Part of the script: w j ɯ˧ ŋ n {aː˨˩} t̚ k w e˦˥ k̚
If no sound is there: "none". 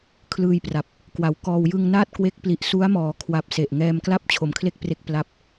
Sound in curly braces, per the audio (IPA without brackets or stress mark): aː˥˩